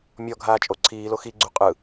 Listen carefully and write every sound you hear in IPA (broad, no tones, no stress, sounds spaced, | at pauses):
mʲ ɔ ɡʱ aː t͡ʃʼ o ǀʰ iː l o x i ɡ͡ǀ u qʼ ɯ